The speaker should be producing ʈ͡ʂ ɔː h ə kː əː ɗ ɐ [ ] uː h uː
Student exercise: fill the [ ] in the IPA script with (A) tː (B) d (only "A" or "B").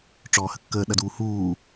B